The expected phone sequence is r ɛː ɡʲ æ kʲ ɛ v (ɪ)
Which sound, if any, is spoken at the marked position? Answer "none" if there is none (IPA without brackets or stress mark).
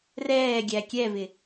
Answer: ɪ